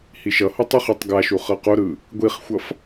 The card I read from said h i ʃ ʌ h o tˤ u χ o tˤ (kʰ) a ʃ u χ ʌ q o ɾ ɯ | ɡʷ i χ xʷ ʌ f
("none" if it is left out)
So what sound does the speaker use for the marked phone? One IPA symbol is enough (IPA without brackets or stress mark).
ɡ